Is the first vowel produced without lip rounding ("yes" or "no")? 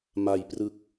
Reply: yes